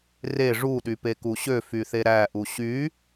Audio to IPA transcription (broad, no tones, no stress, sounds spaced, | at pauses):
r e ʐ u ɗ y p e k u ɕ ø f y θ e ɾ æ ʔ u ɕ y